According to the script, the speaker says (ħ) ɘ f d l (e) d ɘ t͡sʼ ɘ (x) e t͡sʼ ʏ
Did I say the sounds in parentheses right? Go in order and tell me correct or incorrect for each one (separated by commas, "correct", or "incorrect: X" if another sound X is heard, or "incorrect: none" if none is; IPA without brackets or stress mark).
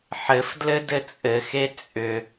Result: correct, incorrect: ɘ, correct